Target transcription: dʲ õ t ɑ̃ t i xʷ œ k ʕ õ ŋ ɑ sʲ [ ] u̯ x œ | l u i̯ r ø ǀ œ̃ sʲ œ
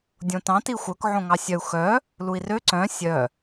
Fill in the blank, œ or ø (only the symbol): œ